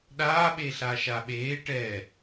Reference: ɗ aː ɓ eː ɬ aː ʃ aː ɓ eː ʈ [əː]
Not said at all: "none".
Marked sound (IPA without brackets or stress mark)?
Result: ɛː